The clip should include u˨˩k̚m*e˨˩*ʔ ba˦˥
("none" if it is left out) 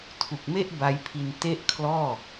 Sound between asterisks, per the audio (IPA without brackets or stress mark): e˥˩